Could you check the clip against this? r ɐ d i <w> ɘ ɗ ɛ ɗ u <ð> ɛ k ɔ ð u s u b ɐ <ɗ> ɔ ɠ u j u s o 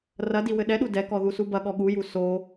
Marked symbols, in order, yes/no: yes, no, no

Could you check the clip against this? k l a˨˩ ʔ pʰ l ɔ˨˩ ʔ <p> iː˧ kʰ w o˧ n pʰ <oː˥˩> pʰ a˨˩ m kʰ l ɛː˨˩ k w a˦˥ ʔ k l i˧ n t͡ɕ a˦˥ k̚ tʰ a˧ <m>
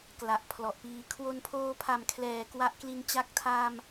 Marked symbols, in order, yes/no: yes, no, yes

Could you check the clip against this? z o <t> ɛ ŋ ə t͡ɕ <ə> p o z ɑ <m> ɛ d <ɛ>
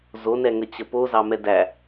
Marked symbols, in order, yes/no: no, yes, yes, no

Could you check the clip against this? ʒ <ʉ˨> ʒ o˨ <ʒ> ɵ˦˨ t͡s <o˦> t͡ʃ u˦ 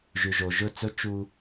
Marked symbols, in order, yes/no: yes, yes, no

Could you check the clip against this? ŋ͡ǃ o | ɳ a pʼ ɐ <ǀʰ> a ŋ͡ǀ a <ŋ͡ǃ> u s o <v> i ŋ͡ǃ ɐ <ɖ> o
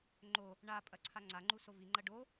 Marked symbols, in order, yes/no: yes, yes, yes, yes

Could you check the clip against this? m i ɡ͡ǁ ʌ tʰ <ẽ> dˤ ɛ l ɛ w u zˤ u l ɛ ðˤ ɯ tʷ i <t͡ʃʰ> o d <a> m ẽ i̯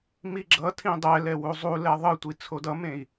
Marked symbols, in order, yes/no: no, no, no

